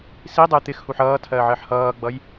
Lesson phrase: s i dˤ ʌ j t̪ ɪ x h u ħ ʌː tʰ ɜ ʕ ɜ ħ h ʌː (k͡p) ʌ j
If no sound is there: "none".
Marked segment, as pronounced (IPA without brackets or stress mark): ɡ͡b